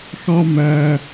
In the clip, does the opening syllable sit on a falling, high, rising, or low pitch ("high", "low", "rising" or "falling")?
high